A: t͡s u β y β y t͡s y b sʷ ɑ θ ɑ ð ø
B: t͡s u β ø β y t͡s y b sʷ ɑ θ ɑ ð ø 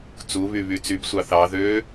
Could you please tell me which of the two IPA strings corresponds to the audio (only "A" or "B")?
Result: A